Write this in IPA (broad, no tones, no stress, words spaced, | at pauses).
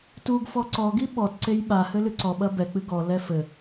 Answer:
tuɡfɔ ǀɔɡi ɓɔtǀej ɓahɘ lɨǀɔɓɐ bɛk͡pɨ ɡɔlɛ fɘ